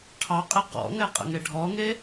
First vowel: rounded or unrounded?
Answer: unrounded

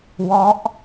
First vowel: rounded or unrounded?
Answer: rounded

